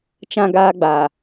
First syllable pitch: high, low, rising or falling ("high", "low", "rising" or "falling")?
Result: high